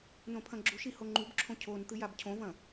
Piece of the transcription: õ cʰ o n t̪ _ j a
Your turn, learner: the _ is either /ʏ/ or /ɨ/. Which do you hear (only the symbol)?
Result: ɨ